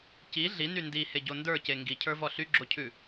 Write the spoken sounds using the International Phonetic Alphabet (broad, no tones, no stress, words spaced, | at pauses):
ci ɮiny ndiheɟo ndə˞ce ŋɡicʰə˞vɔ ɬyɡ͡ǁocʰʉ